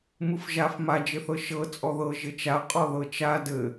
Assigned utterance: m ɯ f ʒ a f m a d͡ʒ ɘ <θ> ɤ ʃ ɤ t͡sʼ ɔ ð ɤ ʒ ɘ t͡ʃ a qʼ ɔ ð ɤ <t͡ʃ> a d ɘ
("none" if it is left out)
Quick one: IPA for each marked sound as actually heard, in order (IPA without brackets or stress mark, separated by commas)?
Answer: θ, t͡ʃ